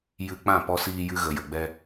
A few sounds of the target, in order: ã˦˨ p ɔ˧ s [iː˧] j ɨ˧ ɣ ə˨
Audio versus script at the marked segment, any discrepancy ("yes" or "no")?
no